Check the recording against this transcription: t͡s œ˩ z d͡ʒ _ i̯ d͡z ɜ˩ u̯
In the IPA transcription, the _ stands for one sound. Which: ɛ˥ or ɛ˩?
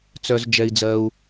ɛ˩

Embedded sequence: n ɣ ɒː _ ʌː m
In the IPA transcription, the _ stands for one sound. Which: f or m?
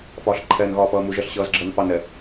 f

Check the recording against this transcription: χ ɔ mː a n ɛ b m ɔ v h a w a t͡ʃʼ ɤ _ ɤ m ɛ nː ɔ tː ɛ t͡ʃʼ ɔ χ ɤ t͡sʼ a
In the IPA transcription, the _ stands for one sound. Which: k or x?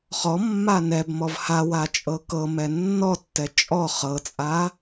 k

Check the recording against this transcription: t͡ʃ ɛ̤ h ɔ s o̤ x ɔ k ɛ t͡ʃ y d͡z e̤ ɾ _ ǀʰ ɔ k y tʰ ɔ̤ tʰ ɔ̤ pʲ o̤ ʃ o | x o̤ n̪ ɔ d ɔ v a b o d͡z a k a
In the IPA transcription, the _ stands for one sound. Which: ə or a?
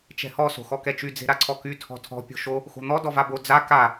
a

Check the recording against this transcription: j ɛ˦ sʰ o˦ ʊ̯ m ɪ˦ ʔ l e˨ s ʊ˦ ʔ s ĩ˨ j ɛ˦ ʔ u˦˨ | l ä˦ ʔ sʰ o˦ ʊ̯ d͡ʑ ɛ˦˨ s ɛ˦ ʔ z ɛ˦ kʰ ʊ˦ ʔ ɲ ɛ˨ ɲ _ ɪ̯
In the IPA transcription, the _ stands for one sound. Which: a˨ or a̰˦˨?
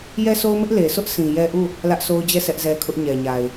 a˨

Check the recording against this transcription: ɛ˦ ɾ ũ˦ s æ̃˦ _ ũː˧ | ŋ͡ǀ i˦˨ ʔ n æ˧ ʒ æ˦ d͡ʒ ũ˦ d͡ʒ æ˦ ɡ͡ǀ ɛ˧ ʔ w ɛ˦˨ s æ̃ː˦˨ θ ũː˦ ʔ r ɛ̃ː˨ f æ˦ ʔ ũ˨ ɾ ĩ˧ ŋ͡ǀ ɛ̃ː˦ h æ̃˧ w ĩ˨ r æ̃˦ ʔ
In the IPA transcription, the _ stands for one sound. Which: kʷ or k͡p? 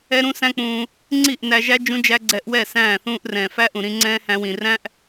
k͡p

